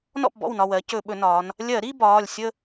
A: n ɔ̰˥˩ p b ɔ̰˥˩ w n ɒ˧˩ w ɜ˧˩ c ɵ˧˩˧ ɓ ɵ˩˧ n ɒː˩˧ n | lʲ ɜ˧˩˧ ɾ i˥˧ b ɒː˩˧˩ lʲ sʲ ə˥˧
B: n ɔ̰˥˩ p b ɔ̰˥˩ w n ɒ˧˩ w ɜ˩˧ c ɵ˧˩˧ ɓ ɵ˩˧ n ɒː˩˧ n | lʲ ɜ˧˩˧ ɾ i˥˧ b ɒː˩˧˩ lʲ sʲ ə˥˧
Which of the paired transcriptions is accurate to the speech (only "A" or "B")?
B